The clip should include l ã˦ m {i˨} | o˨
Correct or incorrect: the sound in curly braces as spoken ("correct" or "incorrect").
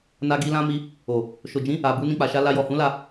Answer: incorrect